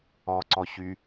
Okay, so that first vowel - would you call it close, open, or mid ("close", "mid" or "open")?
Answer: mid